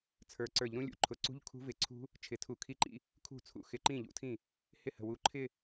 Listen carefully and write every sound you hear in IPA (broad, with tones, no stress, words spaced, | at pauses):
t͡sʰə˞˨˩ ǀə˞˧˩˧ʎɾũ˦˥lʲṵ˦˥ǃʰʊ˨˦ ǀṳ˦˥ʎkʰṳ˦˥vɪ˧˩˧ǀʰṳ˦˥ | t͡ʃʰɪ˨˩tʰu˧˩˧kʰi˦˥ǃḭ˥˧ | kʰṳ˥˩t͡sʰṵ˨˦ xɪ˨˦ ǃĩ˥˩ʎṵ˥˩tʰĩ˥˩ | hɪ˥˩hə̤˨˩wu˨˦ ǃʰɪ˥˧